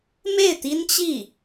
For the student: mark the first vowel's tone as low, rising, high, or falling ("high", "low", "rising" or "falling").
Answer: falling